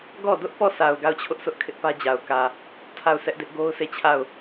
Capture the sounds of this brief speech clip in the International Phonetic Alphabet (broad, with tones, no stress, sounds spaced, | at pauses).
ɡ ɔ˦˨ d ʊ˦ ʔ p ɔ˦˨ sʰ a˨ ʊ̯ ɡ a˦˨ ʊ̯ t͡ɕʰ ʊ˦ ʔ s ʊ˦ ʔ kʰ ɪ˦ ʔ p ä˦ d͡ʑ a˨ ʊ̯ k ä˨ | tʰ a˦˨ ʊ̯ sʰ ɛ˦ ʔ d ɪ˦ ʔ ɡ o˦ ʊ̯ sʰ e˦˨ t͡ɕʰ a˦˨ ʊ̯